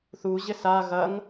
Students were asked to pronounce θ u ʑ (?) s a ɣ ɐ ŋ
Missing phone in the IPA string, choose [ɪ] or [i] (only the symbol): ɪ